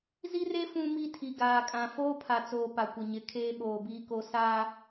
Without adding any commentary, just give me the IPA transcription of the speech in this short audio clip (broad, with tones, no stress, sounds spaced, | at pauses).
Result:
z i˦ r e˦ f ũ˦ m i˦ tʰ i˨ ɡ aː˨ kʼ ã˨ f oː˦ pʰ a˨ t͡s oː˨ p a˨ kʷ ɪ˨ ɲ ɪ˨ kʰ eː˦ ɓ oː˨ b iː˦ k o˦ s aː˦